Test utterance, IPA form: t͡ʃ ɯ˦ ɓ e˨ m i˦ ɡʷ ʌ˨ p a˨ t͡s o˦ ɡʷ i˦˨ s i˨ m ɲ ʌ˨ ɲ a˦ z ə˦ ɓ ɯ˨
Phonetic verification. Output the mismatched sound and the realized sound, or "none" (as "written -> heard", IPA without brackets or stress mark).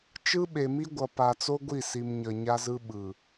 ə˦ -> ɯ˦